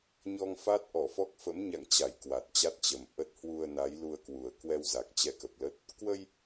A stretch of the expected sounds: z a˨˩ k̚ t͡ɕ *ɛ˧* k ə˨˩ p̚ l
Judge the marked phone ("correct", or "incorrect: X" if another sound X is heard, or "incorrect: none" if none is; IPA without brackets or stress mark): correct